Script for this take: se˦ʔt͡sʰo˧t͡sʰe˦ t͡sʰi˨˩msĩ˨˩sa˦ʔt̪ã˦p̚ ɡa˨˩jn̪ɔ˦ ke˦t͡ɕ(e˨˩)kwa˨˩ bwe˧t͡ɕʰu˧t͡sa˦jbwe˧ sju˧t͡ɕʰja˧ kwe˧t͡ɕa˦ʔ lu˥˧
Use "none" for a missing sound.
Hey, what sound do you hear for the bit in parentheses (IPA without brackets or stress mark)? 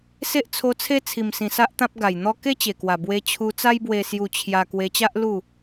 e˨˩